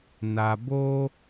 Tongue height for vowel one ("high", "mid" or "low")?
low